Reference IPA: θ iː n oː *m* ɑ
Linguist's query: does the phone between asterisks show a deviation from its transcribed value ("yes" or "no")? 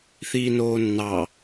yes